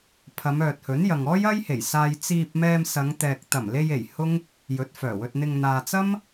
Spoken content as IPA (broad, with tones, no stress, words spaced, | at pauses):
pʰɐ˨˧mœː˨t̚hɵ˨˥njɐ˨ŋ ɔː˥jɐ˥jhe˨˩jsaː˧j t͡siː˧p̚mɛː˧m sɐ˨˧ŋt̪ɛː˨k̚ t̪ɐ˨˩mle˧je˨˩j hʊ˥ŋ | jɵ˨˥t̚fœː˨˩wɵ˧t̚ n̪ɪ˧ŋ n̪aː˨t͡sɐ˥m